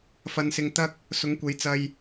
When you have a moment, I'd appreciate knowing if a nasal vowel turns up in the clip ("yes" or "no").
no